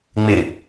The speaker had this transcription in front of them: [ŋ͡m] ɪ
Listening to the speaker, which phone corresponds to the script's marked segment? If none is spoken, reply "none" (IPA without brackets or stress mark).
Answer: ŋ͡m